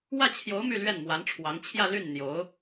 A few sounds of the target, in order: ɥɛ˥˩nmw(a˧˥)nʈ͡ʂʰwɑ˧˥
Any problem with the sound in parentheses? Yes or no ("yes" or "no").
no